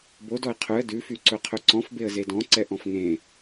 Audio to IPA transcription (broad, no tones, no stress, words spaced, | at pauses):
bodɔɪ̯ qʰɵə̯ dʉfyǀɵ qʰɵǀɔ̃fbeə̯ zedɔ̃ǀɛ ʔɔ̃fŋẽ